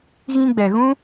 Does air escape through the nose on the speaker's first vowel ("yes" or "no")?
yes